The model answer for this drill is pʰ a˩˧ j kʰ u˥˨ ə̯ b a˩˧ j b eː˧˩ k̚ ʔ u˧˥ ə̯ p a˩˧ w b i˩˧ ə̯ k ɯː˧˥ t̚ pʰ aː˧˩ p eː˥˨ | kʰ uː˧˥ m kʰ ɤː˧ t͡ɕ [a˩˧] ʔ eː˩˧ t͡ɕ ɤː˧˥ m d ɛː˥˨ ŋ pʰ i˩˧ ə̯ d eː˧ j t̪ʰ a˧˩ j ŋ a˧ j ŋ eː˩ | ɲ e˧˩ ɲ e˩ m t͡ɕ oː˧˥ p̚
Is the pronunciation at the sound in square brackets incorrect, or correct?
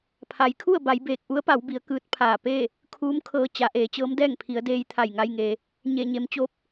correct